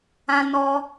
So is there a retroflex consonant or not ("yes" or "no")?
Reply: no